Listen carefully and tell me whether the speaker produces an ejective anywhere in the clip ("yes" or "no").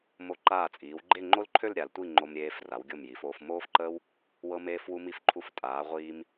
yes